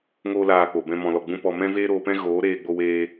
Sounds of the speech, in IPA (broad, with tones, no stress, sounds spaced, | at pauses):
ŋ oː˦ l aː˧ k͡p o˨ b ɛ̃˧ m ɔ̃˨ l ɔ˨ ɡ͡b ũ˦ p ɔ˧ m ɛ̃˦ v eː˦ ɾ oː˧ p ɛ̃˦ ɣ oː˨˦ ɾ eː˧ ɡ͡b o˧ w eː˧